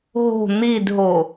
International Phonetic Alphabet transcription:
ɦo̤ n̪idɦo

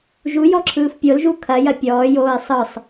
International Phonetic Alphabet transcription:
ʒujɔǁʰɯːf pʲolʒu kʰɐjɐ pʲɔːjoːi̯ sˤɯsˤ

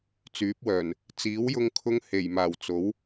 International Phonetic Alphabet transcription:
t͡syː˨˥p̚wœː˨˩n | t͡siː˨˥wjʊ˧ŋkʰʊ˧ŋ he˨˩jmaː˨˩w t͡so˨˥w

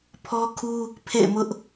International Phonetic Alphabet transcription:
pʰɔ˦kʰu˦ | pʰḛ˦˨ɪ̯mʊ˦ʔ

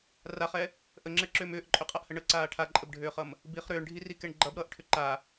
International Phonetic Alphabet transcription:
raχɛ | ʔəŋ͡ǁɛǁʏːm ʏːʔǃʼʏqʼaʔhə ɳəǀaː ʈʰaǃʼəbɖʱʏːχʌm | biχ ɾʏːɳɖʱirikɛɳ ɡ͡ǃʌbɾʌːʔʈʰʏ ǃa

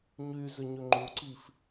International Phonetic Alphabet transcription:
ɲyzʏɲʏ ŋ͡ǃuǀif

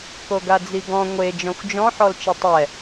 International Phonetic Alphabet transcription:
koɡad͡ziɡɔ̃ ŋʷe d͡ʒɔ̃xʷd͡ʒɔ̃ ħɔlt͡ʃɪtˤɛ

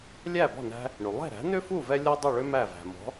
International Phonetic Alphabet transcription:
lʲæ˥˩bɔ̤˥˩ næ̤˧ | ɳy˩lˠɛ̤˥˩ ɾæ̤˩˥nʏ˥fu˥˩ vɛ˥lʲɒ˥dˤu˥˩ɭʏ˥ mæ˥˩væ̤˩ mɔ̤˩˥

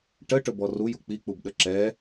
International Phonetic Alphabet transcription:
ʈəʈɵbɔ ruju k͡pik͡pubɗə ǁɛ

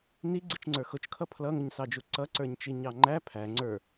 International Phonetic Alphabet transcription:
ni ɡ͡ǀit͡ʃŋ͡ǀə˞xʊt͡ʃkʰʌ pʰlʌŋʊɲsɑd͡ʒu ǀʌǀə˞ɲt͡ʃi ɲɑŋ͡ǃæ pʰæ ŋ͡ǀə˞

